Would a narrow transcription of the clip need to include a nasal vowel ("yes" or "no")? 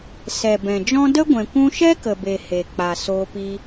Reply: yes